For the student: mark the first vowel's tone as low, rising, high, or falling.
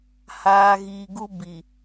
low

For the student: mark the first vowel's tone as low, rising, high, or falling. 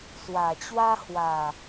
low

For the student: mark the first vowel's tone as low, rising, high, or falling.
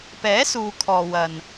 rising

